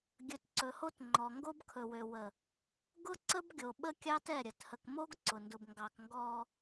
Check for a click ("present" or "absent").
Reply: present